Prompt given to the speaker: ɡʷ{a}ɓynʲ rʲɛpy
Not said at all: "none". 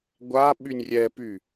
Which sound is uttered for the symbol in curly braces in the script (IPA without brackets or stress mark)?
a